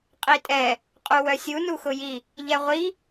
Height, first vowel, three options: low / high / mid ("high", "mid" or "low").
high